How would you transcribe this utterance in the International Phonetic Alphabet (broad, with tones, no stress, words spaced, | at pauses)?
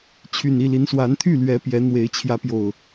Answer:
t͡ɕʰy˨˩ni˥˨li˨˦nswa˨˦n t̪ʰy˥˨lɥɛ˨˦ pjɛ˨˦n̪we˨˦ɪ̯ t͡ɕʰjä˨˦pjo˨˩ʊ̯